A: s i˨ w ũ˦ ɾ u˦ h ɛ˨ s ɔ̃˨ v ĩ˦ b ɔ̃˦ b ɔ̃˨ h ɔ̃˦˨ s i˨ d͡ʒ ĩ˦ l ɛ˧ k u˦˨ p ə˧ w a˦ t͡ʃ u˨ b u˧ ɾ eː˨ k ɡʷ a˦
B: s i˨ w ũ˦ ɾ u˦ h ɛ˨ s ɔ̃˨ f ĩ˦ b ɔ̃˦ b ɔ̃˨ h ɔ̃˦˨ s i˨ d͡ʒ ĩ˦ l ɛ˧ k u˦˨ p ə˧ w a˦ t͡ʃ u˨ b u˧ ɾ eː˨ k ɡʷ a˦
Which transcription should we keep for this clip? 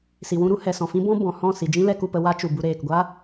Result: B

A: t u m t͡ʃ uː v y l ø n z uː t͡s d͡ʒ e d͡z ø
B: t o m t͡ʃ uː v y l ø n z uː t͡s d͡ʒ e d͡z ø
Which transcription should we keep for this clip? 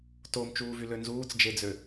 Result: B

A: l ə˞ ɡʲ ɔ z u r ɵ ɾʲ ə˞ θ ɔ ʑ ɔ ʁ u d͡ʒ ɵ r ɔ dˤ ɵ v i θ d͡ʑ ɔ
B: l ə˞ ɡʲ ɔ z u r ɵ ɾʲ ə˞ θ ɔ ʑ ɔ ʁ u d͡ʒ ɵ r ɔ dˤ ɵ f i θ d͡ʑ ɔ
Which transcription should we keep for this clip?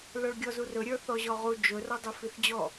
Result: B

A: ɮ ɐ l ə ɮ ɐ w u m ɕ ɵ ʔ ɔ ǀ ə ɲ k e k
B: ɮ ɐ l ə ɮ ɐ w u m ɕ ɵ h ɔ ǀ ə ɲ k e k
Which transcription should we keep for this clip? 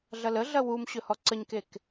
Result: B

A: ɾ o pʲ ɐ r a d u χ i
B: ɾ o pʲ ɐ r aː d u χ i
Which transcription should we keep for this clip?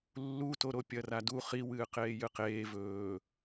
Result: A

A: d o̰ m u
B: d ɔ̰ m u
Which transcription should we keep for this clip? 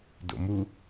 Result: A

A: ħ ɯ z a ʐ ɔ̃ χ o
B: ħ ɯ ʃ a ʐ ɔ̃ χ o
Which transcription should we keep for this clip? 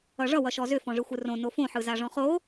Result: A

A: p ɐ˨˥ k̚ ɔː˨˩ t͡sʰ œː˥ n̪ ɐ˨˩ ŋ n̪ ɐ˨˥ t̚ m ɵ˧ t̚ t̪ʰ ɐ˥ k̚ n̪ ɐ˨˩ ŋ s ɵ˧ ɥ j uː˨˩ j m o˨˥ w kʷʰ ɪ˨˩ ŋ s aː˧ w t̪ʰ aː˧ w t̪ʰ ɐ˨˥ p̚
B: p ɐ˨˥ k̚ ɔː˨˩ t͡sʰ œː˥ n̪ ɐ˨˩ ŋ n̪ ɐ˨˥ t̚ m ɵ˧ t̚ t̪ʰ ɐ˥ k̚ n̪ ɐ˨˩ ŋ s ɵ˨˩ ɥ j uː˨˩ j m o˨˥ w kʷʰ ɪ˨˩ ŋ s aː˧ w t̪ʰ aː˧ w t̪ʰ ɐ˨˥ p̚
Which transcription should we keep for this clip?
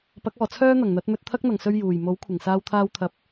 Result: A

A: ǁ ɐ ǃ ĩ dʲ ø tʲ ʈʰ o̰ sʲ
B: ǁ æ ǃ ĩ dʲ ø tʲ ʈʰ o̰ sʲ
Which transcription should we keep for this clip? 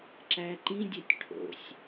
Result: B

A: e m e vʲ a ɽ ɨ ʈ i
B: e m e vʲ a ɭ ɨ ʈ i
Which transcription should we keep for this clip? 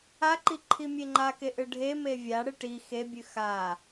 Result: A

